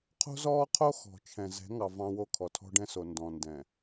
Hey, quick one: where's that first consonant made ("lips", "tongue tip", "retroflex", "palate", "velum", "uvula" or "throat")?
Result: uvula